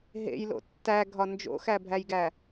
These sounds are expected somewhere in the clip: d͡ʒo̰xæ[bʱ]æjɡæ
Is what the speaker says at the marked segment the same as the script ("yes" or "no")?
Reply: yes